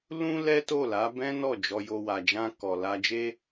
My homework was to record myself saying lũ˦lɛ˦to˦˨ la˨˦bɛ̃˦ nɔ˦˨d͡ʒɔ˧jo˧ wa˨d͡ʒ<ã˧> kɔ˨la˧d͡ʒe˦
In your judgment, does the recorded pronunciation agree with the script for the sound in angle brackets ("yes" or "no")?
yes